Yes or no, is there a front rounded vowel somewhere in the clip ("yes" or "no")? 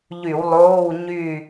yes